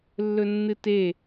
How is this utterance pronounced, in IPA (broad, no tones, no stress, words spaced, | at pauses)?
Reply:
lːɵnːɨte